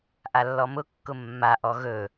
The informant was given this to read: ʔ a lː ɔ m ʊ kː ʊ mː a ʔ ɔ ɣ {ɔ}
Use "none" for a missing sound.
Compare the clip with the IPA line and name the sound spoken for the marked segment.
ɵ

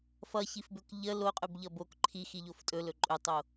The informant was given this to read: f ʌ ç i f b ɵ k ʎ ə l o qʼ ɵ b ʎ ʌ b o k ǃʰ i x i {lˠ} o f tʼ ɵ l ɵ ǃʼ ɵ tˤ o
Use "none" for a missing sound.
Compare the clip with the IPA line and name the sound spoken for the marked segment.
ʎ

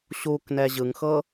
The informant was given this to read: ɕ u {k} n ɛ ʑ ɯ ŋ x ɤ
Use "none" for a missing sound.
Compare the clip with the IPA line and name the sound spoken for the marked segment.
k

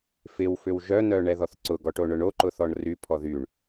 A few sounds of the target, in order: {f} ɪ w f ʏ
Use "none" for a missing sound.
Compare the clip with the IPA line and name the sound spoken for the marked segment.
f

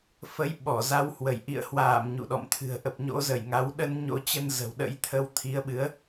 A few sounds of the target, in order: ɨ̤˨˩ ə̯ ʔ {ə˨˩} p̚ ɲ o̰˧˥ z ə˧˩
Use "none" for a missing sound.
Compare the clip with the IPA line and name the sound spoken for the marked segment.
ə˨˩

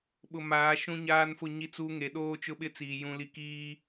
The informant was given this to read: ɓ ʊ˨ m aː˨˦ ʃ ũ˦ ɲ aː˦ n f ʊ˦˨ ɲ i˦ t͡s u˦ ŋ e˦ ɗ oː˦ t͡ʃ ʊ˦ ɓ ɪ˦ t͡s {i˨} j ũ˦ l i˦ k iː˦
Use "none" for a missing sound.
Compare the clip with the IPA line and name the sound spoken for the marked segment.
iː˨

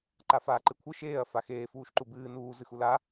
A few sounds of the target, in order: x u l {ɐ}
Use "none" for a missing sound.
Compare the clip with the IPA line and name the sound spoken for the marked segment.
a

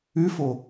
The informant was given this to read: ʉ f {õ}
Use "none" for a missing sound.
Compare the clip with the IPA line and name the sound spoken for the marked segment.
o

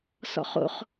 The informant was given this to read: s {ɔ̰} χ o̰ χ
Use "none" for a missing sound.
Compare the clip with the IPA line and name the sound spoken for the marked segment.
ɔ̰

